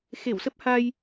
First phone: x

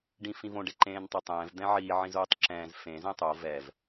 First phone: ɖ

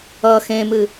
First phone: ʌ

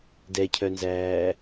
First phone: d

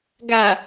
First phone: ɡ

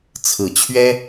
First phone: t͡sʰ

